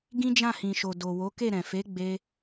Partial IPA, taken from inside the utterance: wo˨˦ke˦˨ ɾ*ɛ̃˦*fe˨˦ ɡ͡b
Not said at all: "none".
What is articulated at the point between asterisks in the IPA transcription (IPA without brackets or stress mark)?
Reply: ɛ̃˨